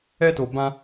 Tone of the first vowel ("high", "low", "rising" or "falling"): high